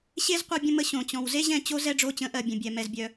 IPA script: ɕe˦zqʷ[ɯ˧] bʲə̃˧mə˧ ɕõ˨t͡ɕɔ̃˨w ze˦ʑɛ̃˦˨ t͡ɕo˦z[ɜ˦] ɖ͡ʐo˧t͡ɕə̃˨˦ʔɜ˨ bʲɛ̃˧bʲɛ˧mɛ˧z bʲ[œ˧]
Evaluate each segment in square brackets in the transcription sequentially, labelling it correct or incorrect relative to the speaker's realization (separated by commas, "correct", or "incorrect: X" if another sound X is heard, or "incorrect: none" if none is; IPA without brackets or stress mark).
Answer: correct, incorrect: ɛ˦, correct